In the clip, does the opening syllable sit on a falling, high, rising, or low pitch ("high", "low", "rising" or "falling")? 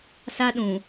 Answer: high